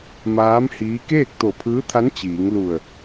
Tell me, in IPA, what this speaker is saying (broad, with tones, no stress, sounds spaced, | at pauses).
m aː˧˥ m h iː˧˥ k eː˥˨ k̚ t̪ o˧˩ pʰ ɯː˧˥ t̪ʰ a˧˥ n t͡ɕ iː˩˧ ŋ l u˧˩ ə̯